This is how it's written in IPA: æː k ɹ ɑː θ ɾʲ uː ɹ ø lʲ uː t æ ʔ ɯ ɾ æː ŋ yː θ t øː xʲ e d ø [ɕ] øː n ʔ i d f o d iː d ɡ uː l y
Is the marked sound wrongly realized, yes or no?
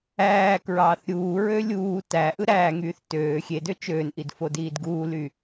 yes